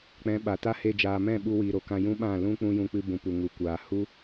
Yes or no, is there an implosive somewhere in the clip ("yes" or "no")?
yes